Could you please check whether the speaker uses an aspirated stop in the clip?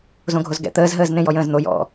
no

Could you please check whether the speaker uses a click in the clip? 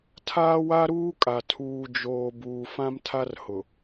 no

